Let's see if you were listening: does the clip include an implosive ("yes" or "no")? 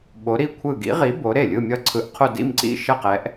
yes